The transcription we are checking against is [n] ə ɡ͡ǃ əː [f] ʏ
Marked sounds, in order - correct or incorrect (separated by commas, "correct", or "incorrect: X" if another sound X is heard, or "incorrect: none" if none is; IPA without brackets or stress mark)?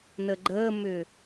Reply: correct, incorrect: m